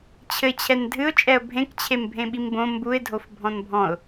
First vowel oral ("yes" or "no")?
yes